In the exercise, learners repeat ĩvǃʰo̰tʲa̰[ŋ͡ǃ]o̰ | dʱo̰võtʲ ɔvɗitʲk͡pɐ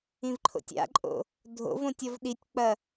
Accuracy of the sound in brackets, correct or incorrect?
incorrect